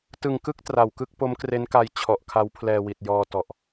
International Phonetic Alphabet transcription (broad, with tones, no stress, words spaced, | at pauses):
tɯ˨˩ŋkɯ˥˩k̚ tra˨˩wkɯ˥˩k̚ po˦˥mkre˦˥nka˧j t͡ɕʰɔ˨˩ʔkʰa˦˥wpʰlɛː˧wi˨˩t̚ jɔː˧ tɔ˨˩ʔ